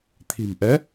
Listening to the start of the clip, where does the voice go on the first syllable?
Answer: low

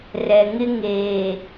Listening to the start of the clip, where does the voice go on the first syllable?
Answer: low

